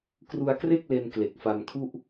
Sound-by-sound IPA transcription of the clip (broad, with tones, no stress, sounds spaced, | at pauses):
k r u˧ a̯ k r e˥˩ k̚ l e˧ n k l e˨˩ k̚ f a˧ m kʰ u˥˩ ʔ